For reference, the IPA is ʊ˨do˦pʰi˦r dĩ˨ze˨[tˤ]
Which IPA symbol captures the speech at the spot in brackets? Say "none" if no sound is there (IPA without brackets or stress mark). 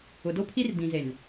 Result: n